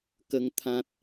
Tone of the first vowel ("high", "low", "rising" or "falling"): high